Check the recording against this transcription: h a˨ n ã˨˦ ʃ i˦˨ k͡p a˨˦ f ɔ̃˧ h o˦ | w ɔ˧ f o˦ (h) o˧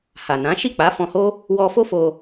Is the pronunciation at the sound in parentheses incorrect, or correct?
incorrect